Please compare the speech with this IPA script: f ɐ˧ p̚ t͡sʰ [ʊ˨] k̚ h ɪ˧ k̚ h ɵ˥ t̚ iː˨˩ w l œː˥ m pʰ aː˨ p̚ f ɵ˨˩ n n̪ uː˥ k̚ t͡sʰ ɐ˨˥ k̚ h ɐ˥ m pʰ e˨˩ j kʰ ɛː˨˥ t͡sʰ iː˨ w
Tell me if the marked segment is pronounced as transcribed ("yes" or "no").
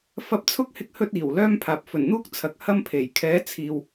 no